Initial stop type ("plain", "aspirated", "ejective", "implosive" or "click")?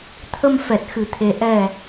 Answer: aspirated